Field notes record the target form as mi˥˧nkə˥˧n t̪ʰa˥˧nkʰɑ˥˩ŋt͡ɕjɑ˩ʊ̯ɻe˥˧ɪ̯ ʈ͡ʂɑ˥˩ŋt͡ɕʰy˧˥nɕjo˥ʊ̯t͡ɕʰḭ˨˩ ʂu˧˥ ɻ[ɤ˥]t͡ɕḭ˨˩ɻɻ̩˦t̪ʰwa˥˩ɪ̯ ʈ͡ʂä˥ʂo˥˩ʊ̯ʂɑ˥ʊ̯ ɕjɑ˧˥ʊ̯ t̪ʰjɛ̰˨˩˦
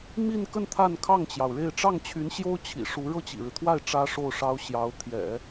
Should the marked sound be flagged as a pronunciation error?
yes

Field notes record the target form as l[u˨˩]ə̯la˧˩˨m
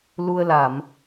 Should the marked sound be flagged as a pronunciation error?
yes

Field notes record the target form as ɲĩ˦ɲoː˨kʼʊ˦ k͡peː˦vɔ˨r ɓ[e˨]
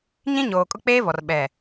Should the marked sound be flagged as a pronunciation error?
yes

